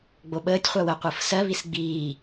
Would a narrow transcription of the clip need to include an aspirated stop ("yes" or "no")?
no